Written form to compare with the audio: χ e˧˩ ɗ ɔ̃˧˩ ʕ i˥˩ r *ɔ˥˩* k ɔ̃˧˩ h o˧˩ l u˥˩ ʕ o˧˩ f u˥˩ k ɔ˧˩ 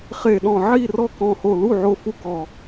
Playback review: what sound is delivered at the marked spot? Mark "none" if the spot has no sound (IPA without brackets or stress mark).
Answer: ɔ˥˩